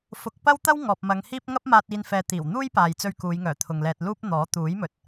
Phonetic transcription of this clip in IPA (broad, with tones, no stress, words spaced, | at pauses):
fʊ˨˥k̚ pɐ˥wt̪ɐ˥w ŋɔː˨p̚ mɐ˨˧ŋhiː˥p̚ ŋɐ˥p̚maː˧t̚ iː˧n fɛː˧t̪iː˨˩w n̪uː˥jpaː˨jt͡sɵ˧ɥ kuː˨˧j ŋœː˨˩t̪ʰʊ˨ŋlɛː˧t̚luː˥p̚ n̪ɔː˨˥ t̪uː˨˥jmɵ˨t̚